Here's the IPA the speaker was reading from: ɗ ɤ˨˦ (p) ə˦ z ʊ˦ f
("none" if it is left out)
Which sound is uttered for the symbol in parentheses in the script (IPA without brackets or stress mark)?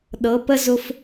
p